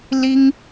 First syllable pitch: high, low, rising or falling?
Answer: high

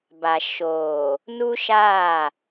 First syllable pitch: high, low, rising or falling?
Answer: low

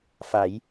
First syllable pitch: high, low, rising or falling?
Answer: rising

